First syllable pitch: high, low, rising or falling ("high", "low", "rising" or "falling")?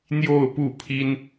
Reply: falling